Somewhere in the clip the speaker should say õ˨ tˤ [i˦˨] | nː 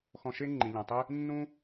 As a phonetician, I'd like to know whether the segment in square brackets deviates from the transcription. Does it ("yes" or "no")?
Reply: yes